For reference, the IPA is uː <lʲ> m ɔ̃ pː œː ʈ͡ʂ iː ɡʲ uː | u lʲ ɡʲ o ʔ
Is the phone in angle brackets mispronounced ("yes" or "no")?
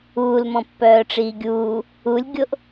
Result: yes